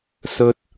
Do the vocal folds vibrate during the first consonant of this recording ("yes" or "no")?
no